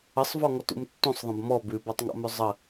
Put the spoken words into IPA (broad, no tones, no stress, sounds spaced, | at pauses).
ə sˤ v ɔ ŋ ɔ t ṵ m tː ũ sˤ ðˤ ə̃ b m ɔ b ʉ b ɔ tˤ ŋ ɔ̰ m ʉ zˤ ə